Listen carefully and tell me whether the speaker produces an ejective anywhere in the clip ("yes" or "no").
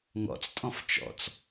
yes